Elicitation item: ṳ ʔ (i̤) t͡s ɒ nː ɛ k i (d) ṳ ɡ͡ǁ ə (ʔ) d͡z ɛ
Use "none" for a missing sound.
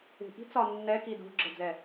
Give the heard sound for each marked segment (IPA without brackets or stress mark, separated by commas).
i̤, d, none